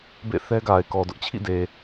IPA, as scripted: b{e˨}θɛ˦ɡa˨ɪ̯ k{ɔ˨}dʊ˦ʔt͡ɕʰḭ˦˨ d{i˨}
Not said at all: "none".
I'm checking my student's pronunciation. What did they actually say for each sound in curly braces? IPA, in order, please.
ḛ˦˨, ɔ˨, e˨

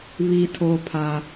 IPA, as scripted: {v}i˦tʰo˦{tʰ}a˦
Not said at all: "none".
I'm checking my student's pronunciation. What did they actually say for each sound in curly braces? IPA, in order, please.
β, pʰ

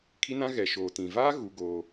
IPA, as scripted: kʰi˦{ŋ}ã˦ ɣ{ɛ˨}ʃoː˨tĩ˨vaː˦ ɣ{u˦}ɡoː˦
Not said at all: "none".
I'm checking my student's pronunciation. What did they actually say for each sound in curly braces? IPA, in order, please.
n, ɛ˨, u˦

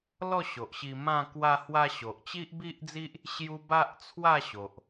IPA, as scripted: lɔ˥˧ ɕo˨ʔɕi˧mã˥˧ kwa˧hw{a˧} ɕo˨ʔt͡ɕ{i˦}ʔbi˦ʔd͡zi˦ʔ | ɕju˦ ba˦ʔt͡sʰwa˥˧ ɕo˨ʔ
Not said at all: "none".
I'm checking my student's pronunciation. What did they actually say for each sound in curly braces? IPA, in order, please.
a˧, i˦

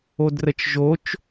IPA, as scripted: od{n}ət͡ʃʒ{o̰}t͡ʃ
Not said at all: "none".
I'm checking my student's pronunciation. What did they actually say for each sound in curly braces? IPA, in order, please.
r, o

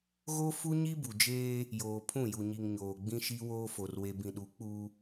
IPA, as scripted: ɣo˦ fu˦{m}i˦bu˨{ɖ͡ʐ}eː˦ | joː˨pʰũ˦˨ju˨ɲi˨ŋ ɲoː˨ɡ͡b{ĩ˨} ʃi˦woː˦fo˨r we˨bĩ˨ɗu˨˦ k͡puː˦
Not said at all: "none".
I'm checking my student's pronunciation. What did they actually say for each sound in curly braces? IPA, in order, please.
ɲ, d͡ʒ, ĩ˦

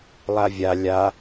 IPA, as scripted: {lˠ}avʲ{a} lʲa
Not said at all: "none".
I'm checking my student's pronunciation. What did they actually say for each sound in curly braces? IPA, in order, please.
lˠ, a

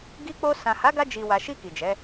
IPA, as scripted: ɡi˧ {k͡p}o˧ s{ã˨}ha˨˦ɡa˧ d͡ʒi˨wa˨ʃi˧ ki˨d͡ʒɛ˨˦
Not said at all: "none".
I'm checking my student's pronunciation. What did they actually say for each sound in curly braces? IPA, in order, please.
k͡p, ã˨

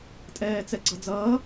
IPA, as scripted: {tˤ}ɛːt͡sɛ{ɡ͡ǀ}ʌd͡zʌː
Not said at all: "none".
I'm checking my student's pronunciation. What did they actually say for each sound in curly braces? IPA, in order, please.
tʼ, ɡ͡ǀ

